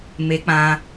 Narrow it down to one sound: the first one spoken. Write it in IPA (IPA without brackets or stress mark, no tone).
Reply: m